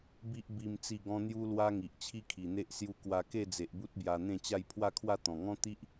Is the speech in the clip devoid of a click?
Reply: yes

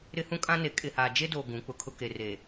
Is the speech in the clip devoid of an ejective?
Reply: no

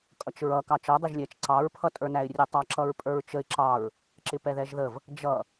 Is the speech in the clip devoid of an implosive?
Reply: yes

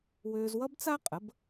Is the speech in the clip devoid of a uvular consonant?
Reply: no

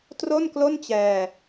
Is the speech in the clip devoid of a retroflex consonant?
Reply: yes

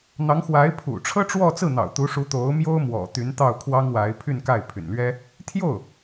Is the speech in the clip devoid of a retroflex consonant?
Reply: no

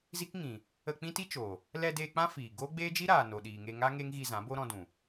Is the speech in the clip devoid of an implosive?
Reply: no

